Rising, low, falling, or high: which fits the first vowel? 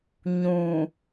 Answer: low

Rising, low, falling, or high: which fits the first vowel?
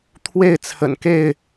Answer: falling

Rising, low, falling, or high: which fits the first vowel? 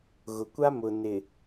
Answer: low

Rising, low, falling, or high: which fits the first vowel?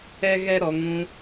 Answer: high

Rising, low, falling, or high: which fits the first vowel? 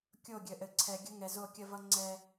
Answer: falling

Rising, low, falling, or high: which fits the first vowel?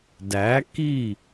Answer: rising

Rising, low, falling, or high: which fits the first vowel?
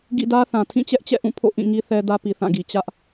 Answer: falling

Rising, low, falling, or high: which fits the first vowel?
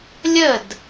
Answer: falling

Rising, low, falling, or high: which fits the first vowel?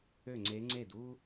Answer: falling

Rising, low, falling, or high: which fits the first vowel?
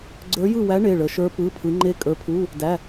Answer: rising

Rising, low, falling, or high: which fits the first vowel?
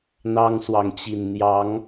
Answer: high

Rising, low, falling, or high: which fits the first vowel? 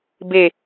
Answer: low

